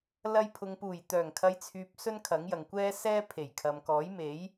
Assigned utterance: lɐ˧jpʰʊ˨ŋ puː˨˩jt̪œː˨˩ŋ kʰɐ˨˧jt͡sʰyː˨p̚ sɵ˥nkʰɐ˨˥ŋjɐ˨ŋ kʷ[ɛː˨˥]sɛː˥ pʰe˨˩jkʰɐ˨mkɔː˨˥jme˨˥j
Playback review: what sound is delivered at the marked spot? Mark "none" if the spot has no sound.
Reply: ɛː˥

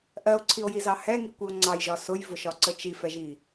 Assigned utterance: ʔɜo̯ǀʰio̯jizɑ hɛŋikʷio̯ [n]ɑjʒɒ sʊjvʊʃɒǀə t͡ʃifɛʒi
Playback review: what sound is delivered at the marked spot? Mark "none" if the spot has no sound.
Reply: ŋ͡ǀ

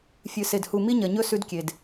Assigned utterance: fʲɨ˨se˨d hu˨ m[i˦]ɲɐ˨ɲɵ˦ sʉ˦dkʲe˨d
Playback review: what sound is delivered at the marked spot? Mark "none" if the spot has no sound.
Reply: i˦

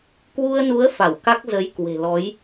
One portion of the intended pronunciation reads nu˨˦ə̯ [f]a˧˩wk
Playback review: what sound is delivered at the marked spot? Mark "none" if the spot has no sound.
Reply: f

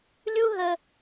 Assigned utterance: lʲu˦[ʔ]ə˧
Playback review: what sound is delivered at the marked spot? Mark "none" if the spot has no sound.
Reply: ɦ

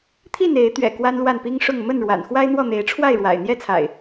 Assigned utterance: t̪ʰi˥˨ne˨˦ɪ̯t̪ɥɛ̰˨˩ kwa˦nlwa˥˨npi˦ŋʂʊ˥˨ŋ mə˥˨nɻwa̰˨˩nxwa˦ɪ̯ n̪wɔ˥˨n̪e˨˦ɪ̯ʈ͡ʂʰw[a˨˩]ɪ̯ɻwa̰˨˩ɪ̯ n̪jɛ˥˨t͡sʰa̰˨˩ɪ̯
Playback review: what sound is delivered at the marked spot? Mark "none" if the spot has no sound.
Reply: a˥˨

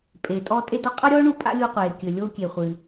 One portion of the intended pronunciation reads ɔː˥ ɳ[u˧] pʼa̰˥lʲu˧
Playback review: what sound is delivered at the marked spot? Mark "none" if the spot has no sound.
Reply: u˧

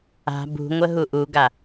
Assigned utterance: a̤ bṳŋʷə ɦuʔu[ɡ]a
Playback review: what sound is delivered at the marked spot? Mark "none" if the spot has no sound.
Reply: ɡ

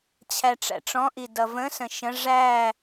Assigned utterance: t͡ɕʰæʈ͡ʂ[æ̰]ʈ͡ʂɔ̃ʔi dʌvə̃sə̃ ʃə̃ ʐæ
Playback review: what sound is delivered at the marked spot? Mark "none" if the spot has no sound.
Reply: æ̰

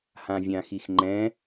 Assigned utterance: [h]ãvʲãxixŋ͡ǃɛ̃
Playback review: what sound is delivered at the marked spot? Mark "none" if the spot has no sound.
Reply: h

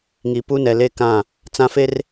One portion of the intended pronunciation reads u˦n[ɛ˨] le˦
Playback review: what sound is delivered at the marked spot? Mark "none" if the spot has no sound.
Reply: ɛ˨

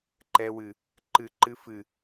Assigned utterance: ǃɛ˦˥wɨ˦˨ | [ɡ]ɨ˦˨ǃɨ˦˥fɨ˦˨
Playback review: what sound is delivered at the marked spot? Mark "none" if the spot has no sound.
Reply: ǃ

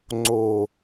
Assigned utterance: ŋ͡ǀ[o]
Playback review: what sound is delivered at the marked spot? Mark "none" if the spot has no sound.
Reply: o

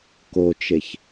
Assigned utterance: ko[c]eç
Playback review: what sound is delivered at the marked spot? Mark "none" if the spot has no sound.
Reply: t͡ʃ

